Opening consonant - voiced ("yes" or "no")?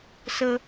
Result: no